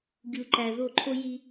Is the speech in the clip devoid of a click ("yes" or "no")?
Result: no